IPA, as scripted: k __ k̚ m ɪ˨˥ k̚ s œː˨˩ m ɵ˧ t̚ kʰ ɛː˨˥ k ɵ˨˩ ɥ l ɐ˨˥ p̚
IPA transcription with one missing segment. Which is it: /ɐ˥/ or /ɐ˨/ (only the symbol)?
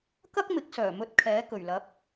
ɐ˥